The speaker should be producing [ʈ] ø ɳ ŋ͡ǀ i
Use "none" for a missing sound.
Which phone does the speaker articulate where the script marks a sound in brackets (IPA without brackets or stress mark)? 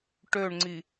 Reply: ʈ